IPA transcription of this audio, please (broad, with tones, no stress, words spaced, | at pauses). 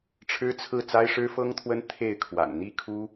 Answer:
ʈ͡ʂʰɻ̩˥t͡sʰɹ̩˥˩ t͡sa˥ɪ̯ʂɻ̩˥fɤ˥ŋt̪ʰwə˥n t̪ʰe˥˩ɪ̯kʰwa̰˨˩n n̪i˥˩kʰu˥